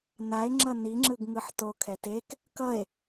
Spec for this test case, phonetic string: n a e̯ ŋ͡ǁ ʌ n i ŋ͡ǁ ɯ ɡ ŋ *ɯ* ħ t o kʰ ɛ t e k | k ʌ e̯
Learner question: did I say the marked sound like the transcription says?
yes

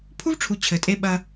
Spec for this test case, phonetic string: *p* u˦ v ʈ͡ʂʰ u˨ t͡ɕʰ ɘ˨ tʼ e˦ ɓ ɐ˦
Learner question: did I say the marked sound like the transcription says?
no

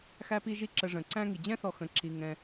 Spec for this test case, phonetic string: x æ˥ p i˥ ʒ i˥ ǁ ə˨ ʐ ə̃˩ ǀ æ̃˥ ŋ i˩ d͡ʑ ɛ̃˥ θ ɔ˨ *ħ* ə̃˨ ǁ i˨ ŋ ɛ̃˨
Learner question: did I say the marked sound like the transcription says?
no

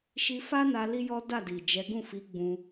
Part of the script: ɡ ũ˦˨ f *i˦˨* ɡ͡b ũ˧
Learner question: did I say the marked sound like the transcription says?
no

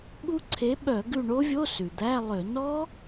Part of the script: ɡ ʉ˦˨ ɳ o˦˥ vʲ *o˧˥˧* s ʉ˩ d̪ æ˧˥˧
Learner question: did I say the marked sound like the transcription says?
yes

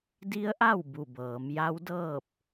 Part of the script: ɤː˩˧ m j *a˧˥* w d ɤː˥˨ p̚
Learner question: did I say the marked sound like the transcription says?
yes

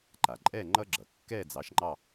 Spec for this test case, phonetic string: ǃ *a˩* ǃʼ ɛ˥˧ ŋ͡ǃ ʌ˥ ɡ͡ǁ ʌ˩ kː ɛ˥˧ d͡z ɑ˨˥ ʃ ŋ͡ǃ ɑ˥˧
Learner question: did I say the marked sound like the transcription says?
yes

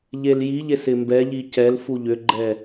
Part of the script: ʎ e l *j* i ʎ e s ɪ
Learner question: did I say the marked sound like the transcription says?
yes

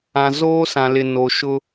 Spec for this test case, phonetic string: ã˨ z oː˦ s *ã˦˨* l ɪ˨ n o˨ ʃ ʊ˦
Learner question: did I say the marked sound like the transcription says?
no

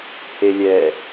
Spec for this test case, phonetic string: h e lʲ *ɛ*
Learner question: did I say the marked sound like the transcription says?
yes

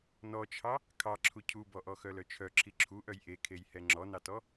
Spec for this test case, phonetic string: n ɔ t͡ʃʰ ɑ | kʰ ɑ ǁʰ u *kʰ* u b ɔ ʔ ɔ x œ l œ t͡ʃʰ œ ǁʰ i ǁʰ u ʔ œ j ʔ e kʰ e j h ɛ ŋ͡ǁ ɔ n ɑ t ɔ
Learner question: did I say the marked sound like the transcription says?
no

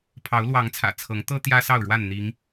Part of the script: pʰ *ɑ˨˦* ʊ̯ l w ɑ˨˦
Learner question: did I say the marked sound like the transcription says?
yes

